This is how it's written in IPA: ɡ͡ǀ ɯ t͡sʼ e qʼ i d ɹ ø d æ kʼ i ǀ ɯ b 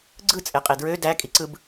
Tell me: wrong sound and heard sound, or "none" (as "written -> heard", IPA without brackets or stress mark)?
none